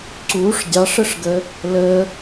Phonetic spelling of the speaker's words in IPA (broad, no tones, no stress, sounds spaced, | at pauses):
ǀ u ʂ dʲ ɑ ʂ ə ʂ ɡ ə | l ə